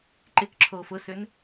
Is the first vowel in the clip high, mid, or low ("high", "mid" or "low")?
high